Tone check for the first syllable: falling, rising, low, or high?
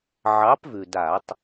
rising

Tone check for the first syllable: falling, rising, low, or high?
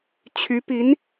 rising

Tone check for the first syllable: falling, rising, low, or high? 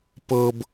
high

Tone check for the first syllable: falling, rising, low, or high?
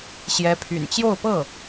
rising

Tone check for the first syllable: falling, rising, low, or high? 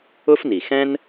high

